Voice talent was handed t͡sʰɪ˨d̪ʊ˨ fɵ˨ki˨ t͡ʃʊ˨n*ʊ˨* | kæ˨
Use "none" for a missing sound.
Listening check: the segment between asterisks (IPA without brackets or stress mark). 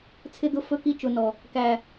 ɔ˨